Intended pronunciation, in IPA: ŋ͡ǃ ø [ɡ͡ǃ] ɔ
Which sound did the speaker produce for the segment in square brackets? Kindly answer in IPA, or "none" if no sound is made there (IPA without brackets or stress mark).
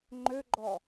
ɡ͡ǃ